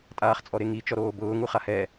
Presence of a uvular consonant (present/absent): present